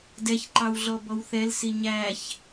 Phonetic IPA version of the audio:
d ɛ ç ǃ ɑ w ɮ ɔ b ɔ w θ ɛ l s i ɲ æ ç

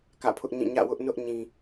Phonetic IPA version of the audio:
k ä̰˦˨ pʰ ʊ˦ ʔ ɲ ĩ˦˨ ɲ ä̰˦˨ w ʊ˦ ʔ n ʊ˦ ʔ ɲ ĩ˨

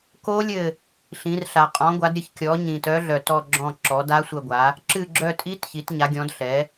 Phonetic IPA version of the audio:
k o˦˥ lʲ ɘ˦˨ | ɬ ĩ˩˥ r ɬ a˨ qʼ ɔ̃˩˥ ɡʷ a˩˥ d ɾʲ ə˦˨ ç kʲ ɔ˩˥ ɲ ĩ˨ t œ˦˥ ɮ œ˨ t ɔ˦˨ ɡ͡ǁ ɔ̃˦˨ ǁ ɔ˩˥ d a˦˥ sʷ ə˦˨ ɡʷ a˩˥ | ǁ ɨ˦˨ ɡ͡ǁ œ˦˨ tʼ i˦˥ t ç i˩˥ t ɲ a˩˥ ɡʲ ɔ̃˩˥ d ɬ ɛ˩˥

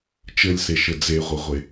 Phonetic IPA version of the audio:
t͡ʃ ɘ lʲ s e ʃ ɘ d͡z e ʁʷ ɘ ʁʷ e

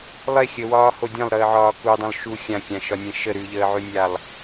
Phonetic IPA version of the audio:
lˠ e xʲ ə w ɒː h o dʲ ã lˠ ɾ əː ʕ ɒː k u dˤ ə̃ lˠ ʃ u xʲ ã kʲ ã ʃ ɒ nʲ ẽ ʃ ə ɾ ʉ ʎ əː ʕ ʉ nʲ a lˠ

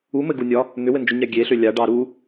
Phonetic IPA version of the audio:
u m ɘ ɡ u nʲ ɒ | n̪ ʏ w ɘ n d͡ʒ u ɲ a ɡʲ e ɬ ʏ lʲ a ɖ ɑ ɾ u

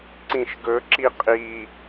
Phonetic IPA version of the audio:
ǀ ĩ ʃ ɡ ɵ ǁ i qʼ i

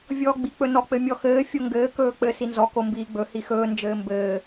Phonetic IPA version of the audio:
vʲ ɔː ɡ͡b i k͡p ɵ n ɔ k͡p ɘ mʲ ɔ x ɘː fʲ o ŋ ɡ ɘː k ɵː k͡p ɘ s i n z ɔ k o m b iː ɡ͡b ɵ h i x ɵː n d͡ʒ ɘː m b ɘː

